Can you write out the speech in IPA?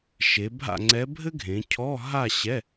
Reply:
ʃe˩˧bʱa̰˥˨ŋ͡ǀɛ˧˥ bʱɘ˥ɡʱẽ˩˧ cʰɔ˧˥˧ɦa˥˨ ɕɛ˧˥˧

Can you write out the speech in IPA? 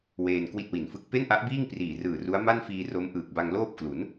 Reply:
weː˧n kwi˥˩t̚wi˨˩nfɯ˥˩k̚ pe˥˩nʔa˦˥ʔbiː˥˩ŋ priː˨˩rɯː˨˩ru˦˥a̯ ma˥˩nfiː˧ro˦˥m ʔɯː˨˩k̚ba˧ŋloː˥˩p̚klu˩˦n

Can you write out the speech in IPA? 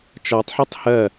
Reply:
t͡ʃɒtˤħʌtˤ hɜ

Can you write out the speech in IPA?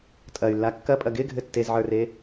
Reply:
tʼɐy̯lːa kːɐpʼɐ ɡɪɡʱɘ tːezʕə˞re

